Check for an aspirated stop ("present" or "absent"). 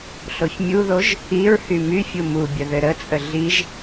absent